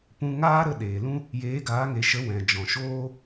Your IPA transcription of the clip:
pũ˧ŋaː˦ɾə˦˨ ɗeː˨lũ˦ | jeː˨˦ɡaː˨˦ŋe˨ ʃə˨˦ wɛ̃˨ d͡ʒɔ̃˨ʃoː˦

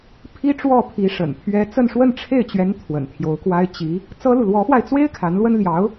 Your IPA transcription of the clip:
pʰi˥ʈ͡ʂwɔ˥˩pʰi˧˥ ʂə̰˨˩npʰɥɛ˥ t͡sə˥˧nʂwə˥˧nʈ͡ʂʰe˥˩ɪ̯t͡ɕɥɛ˧˥n t̪ʰwə̰˨˩nt̪ʰjo˧˥ʊ̯kwa˥ɪ̯ t͡ɕi˧˥ | t͡sɤ˥lu˨ lwɔ˧˥fwa˧ɪ̯t͡swe˥ɪ̯ kʰa˧˥nlwə˥n ljɑ˧˥ʊ̯

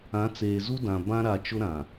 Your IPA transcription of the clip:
ã˨˦t͡seː˨zu˦dã˨ bã˦ɾa˨t͡ʃʊ˦ ɾã˨

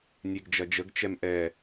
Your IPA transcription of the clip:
nʲeɡd͡ʒɐd͡ʒəɡ t͡ʃɛmʔɛ

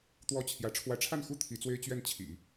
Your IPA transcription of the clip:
t̪wɔ˥t͡ɕʰjä˧˥ ʈ͡ʂʰwä˧˥ʈ͡ʂʰa˥˩nxu˥ t̪ʰi˧˥t͡swe˥ɪ̯ t͡ɕɥɛ˥˩nt͡ɕʰḭ˨˩˦

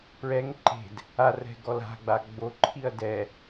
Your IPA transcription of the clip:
pɹɛŋ ǃe̤d | arɛ̤ ɡɔla̤ɡ͡ba ɡ͡boǃʰiɐ̯ dɛ

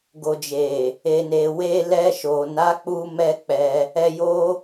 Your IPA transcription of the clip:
ɡo˨d͡ʒe˨ | e˨ne˨ we˧lɛ˧ʃo˨ na˨˦k͡pu˧mɛ˧ k͡pɛ˧ | ɛ˧ jo˦

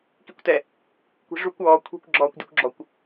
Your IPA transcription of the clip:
kikʷtɛ | kʷi̤ʐukʷ ɔː kʷʰi̤kʷ ɡ͡ǁɔːkʷdʲukʷɡ͡ǁɔkʷ

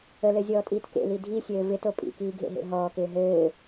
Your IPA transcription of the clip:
əlɘzʲɔːtʼiːt kḛli dʱisʲɘː vɪto pʼḭkiːɡʱḛɦḛ ɦɔːkɪː ɦɘː

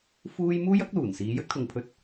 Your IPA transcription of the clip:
fuː˥j muː˥jɐ˨˥k̚luː˨˩nsiː˨˧ jɵ˥t̚kʰʊ˨˧ŋpʰɵ˧t̚

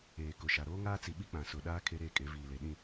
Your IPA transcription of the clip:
eː˨kʊ˨ʃa˨ ɾoː˦ŋaː˦t͡si˨ɓi˦ k͡pã˨sʊ˨ ɗaː˦ kʰe˦ɾeː˦kʼe˨˦ viː˨le˨ ɗĩ˦˨

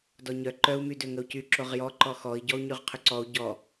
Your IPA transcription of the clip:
dɔɲœ ǃœu̯ mydøŋəu̯cy ǁoʁjɔǃɔ xɔi̯ɟɔu̯ɲyʁ qʰʏǀɔu̯ ɟɔ

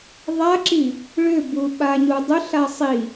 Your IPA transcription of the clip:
ðˤaǁi | ɭʏbu ɓaɲudˤʏɬa sˤi

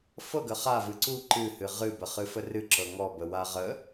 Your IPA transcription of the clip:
fɤɡə χavɨ ǀu ǃɨhɨ ʁɨbəχɨfə rɨǁɤ ŋɔbəwa ʁə

